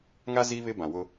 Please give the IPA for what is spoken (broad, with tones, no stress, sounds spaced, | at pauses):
ŋ a˦ z i˦ β ɪ˦ b ã˨ w ʊ˦